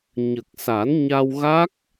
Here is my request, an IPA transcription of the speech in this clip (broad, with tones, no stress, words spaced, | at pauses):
ɲə˨˩k̚sa˨˩˦n ɲa˧wɣa˦˥k̚